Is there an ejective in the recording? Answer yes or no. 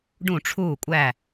yes